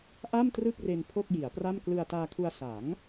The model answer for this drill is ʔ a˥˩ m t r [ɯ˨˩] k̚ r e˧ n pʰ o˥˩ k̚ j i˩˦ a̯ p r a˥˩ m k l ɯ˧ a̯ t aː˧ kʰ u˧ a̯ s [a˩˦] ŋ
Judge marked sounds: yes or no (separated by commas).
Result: no, yes